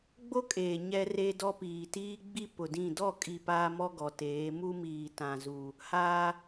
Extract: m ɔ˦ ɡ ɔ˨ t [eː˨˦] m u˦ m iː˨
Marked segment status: correct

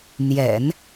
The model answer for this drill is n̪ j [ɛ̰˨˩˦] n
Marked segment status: correct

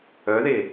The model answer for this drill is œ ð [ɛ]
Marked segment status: incorrect: e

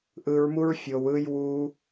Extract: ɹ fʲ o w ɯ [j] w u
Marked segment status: correct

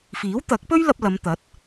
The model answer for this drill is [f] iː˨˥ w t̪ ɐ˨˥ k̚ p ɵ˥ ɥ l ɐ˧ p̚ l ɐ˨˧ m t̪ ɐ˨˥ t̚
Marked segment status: correct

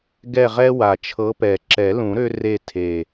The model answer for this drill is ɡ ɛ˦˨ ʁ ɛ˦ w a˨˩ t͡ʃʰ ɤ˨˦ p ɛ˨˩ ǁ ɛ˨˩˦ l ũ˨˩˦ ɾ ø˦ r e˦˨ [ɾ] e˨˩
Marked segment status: incorrect: tʰ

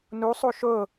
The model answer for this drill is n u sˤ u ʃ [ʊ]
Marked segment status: correct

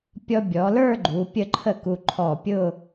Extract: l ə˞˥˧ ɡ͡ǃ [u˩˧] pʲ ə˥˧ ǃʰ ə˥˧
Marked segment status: correct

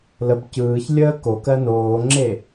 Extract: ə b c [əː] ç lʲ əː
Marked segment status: incorrect: ɯː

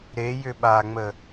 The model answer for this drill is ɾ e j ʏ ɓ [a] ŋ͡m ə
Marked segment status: correct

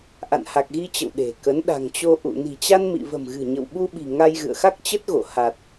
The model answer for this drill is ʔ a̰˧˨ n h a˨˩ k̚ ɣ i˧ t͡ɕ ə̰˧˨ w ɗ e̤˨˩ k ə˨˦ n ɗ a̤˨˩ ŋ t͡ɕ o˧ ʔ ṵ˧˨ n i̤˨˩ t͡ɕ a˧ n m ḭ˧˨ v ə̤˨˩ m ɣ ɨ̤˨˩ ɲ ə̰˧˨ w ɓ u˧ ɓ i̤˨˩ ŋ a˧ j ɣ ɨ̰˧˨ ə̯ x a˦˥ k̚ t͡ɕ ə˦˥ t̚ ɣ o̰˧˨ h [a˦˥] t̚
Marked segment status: incorrect: a˨˩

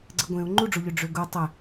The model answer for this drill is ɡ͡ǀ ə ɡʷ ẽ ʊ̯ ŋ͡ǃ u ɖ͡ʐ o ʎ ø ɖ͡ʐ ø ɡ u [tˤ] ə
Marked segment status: correct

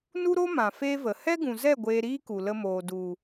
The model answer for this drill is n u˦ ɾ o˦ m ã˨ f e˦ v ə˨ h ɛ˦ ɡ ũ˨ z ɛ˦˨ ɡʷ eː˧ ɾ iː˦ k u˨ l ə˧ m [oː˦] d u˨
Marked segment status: incorrect: oː˨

